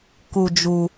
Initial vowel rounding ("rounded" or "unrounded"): rounded